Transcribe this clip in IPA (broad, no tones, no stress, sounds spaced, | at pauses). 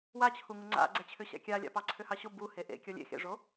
w a t͡ɕʰ u ŋ u ŋ͡ǀ a̰ ɡ͡ǀ ɛ t͡ɕʰ ʏ ɕ a̰ kʲ a lʲ a̰ p ɑ ǀʰ ʏ h ɑ ɕ o b u h e ʔ ḛ kʲ ɔ lʲ ḛ x ḛ ʐ o